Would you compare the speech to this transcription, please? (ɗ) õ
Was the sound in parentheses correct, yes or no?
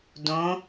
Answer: no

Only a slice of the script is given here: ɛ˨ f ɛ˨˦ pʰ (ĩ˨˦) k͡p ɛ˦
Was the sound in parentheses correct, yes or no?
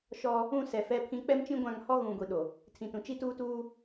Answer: yes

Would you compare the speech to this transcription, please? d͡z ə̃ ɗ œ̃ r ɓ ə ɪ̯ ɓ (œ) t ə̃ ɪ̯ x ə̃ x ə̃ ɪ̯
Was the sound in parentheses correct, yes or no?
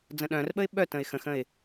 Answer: yes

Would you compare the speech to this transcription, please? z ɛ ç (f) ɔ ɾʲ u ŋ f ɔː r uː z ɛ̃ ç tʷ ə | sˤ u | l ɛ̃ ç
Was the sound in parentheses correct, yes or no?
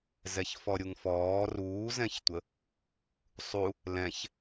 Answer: yes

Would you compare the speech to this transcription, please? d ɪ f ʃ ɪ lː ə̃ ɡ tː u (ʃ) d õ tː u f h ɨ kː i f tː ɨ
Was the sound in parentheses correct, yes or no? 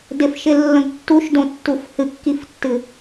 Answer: yes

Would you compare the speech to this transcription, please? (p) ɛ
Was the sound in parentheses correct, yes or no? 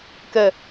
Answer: no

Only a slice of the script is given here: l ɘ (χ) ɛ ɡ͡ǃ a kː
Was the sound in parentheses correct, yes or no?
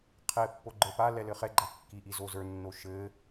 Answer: yes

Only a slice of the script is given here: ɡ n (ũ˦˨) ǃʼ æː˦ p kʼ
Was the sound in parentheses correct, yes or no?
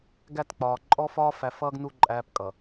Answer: no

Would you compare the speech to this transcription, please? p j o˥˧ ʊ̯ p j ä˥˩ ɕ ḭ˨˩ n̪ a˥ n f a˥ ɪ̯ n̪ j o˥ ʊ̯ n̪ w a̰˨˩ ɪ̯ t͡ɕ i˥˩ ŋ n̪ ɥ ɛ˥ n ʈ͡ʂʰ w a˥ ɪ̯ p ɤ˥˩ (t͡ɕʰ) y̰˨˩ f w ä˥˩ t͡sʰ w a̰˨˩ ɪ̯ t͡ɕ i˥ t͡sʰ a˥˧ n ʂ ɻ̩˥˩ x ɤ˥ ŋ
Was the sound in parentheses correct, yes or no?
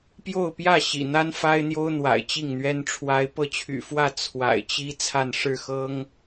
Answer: yes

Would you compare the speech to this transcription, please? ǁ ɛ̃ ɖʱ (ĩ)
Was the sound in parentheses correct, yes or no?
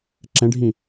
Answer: yes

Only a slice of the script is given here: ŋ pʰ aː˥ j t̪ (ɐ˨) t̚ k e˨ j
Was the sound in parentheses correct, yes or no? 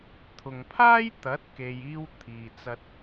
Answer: no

